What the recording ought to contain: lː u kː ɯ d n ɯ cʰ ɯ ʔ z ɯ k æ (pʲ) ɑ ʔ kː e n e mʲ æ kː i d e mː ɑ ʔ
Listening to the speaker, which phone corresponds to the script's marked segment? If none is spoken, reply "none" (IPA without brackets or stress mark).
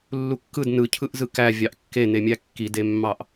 vʲ